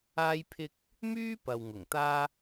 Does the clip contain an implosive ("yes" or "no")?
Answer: no